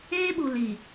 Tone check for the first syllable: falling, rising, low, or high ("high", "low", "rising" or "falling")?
high